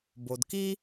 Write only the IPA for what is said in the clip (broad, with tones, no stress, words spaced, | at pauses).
bo˨dki˦